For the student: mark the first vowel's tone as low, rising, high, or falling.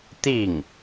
falling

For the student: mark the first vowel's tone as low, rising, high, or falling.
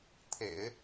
low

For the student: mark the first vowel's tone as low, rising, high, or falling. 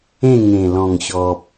falling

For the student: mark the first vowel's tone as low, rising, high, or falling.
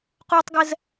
high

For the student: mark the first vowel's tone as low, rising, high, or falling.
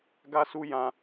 high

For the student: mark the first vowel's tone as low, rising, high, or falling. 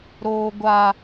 high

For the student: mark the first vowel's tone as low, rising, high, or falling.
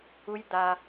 high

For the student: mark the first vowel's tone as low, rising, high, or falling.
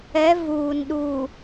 rising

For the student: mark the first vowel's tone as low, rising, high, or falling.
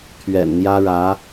low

